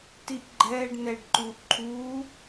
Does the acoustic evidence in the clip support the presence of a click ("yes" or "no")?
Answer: yes